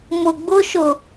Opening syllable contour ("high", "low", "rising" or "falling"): low